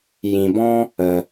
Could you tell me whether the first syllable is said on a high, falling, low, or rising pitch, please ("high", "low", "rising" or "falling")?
low